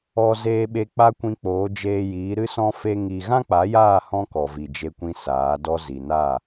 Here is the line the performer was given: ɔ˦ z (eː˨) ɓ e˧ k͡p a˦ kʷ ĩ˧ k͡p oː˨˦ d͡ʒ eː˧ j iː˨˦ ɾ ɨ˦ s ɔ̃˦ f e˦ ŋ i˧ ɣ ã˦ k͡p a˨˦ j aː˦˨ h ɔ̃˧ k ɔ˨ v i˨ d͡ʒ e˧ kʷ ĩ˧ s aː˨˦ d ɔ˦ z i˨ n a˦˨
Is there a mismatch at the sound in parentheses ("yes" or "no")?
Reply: yes